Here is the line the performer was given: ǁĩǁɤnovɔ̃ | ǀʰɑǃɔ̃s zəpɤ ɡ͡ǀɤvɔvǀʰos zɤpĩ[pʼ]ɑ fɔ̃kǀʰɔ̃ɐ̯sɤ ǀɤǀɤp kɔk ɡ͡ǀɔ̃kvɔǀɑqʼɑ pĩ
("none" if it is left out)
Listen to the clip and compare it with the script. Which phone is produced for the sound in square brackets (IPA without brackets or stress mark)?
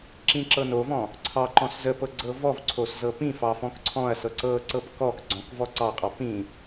f